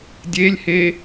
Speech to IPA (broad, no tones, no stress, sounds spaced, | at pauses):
dʲ e lʲ h e